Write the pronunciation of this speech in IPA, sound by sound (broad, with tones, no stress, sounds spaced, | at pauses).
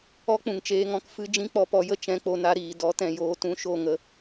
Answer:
ɔ˦ k͡p ũ˨ ŋ t͡ʃ eː˧ ŋ ɔ̃˧ k f ɨ˧ d͡ʒ ĩ˦ k͡p ɔ˧ p ɔ˧ j ə˦ t͡ʃ ɛ̃˧ k͡p o˧ n a˧ ɾ iː˨ d ɔ˨˦ t ɛ̃˨ j oː˧ t ũ˧ ʃ o˦˨ ŋ ə˧